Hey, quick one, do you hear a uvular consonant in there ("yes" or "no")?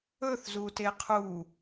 yes